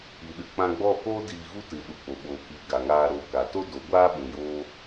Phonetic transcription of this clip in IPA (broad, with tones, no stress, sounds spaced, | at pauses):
i˨ ɗ ɨ˨ k͡p ã˧ ɡ͡b ɔ˦˨ k oː˦ d iː˧ ɣ u˦ t ɨ˨ ɗ u˨ k͡p o˨ ɓ oː˨ k iː˨ ɡ a˨ ŋ aː˧ ɾ o˨ k a˨ t o˦ d o˨˦ ɡʷ aː˦ ɓ ũ˨ j oː˦